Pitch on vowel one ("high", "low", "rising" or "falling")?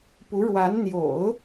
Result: rising